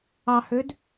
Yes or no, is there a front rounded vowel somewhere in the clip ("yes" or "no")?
yes